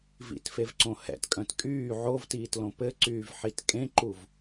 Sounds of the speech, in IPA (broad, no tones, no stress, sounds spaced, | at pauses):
v ḭ t f e v ǀ õ h ɛ̰ t kʼ œ̃ t kʼ yː ʕ o v t iː t l õ p ɘ ǀ yː v ħ i t kʼ ẽ ǃ u v